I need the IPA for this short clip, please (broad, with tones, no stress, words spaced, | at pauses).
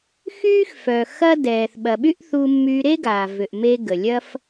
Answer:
xyː˥xfœ˩ xɐ˥ dɛː˩θ ɓɐ˩ɓy˥ʔ θu˧mːy˧ ɾe˥ɡa˩vʏ˩ʔme˧ ɡə˩lʲɐ˥f